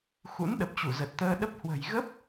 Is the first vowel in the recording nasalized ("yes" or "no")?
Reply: no